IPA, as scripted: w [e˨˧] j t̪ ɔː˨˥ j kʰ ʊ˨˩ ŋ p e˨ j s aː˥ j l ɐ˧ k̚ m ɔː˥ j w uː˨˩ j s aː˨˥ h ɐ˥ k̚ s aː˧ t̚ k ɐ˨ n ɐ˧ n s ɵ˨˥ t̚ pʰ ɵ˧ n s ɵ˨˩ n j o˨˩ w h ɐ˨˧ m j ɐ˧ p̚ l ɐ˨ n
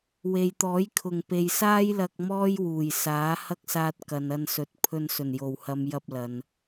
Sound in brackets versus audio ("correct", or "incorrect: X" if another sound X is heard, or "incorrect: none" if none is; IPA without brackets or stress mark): incorrect: e˨